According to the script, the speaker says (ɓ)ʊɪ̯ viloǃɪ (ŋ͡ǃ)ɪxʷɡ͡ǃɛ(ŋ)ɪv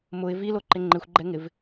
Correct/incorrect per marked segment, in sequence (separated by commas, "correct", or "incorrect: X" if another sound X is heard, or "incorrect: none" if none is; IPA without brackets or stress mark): incorrect: m, correct, correct